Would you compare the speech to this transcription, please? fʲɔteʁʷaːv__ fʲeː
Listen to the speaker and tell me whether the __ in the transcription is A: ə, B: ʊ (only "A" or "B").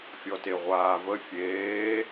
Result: A